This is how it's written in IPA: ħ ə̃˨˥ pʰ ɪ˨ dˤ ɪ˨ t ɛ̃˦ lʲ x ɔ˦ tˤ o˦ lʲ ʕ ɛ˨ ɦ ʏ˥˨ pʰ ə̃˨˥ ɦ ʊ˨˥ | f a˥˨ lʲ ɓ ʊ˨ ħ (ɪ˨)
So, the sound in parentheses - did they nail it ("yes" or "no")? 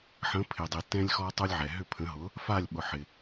yes